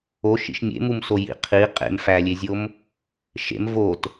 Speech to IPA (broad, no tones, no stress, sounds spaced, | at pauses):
o ʃ ḭ ʃ mʲ ḛ m u m s o j ḭ qʰ i qʼ ḛ m f æ lʲ e zʲ o m | ʃ ḛ m v o t